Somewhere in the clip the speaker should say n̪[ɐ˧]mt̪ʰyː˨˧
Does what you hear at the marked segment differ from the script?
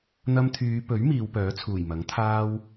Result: no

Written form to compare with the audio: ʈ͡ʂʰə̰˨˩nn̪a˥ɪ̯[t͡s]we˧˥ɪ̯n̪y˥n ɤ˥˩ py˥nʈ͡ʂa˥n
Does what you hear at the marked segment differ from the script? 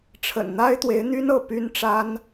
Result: yes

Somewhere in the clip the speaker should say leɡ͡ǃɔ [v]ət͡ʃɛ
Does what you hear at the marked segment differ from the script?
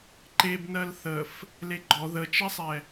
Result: yes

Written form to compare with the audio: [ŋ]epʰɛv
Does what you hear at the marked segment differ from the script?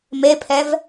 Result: yes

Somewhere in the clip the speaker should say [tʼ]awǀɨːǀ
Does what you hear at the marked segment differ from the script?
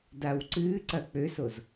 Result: yes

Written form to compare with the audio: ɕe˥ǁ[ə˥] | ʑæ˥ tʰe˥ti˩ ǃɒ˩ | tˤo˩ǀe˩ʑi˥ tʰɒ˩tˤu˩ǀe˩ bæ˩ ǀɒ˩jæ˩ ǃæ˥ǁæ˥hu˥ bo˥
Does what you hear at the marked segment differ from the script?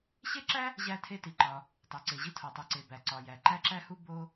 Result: yes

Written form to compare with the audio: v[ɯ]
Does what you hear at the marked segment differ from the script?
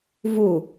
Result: yes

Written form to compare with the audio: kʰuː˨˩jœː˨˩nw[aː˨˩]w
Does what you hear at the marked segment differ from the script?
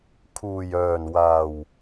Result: no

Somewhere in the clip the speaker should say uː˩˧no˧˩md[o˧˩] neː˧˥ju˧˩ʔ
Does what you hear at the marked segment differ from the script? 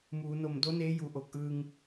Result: yes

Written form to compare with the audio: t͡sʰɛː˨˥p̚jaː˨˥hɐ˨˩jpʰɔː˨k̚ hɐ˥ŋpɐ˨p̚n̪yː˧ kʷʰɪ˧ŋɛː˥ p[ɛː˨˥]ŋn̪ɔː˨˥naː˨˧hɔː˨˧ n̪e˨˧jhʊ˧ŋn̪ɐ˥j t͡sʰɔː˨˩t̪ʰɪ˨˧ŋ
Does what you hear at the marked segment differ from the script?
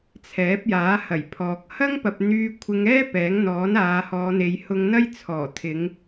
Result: no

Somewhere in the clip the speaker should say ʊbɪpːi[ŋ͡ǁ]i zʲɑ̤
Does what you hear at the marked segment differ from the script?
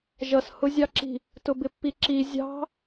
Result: yes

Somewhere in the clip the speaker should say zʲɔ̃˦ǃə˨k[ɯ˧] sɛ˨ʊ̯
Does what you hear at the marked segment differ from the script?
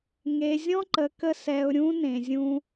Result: yes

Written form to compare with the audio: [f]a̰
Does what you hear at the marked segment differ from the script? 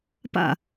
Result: yes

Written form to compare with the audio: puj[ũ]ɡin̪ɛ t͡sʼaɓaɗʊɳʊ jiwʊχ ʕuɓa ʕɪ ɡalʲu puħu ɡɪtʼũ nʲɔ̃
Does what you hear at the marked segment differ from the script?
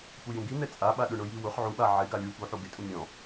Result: no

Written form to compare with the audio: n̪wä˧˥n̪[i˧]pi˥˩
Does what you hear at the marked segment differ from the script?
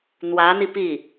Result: no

